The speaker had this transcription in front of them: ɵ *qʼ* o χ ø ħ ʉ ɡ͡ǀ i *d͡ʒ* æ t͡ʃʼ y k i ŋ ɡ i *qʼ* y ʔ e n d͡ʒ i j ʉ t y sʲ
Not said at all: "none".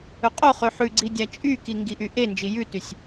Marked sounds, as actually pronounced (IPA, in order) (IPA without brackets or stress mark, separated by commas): qʼ, dʲ, ʔ